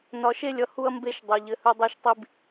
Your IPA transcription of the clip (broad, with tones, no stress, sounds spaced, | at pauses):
n ɒ˧ ʃ e˦ lʲ ʌ˧ h u˦ ɐ̯ m b e˦ ʃ dˤ ɘ˧ ʎ ɘ˧ h ɵ˦ dˤ ɛ˦ ʃ tˤ i˦ b